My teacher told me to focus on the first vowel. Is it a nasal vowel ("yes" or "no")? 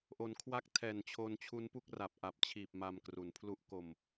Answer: no